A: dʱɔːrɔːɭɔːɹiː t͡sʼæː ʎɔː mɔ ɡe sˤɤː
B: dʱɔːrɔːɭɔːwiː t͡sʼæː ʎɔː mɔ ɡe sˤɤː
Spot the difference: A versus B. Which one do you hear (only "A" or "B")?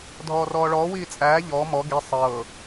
B